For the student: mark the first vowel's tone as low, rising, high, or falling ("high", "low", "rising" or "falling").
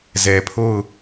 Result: low